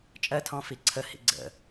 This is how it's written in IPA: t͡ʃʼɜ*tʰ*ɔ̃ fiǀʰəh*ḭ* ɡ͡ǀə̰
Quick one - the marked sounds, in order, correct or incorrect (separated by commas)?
correct, correct